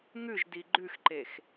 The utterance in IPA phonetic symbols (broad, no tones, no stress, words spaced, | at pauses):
ŋʉʒdi ɡ͡ǃʉxǃex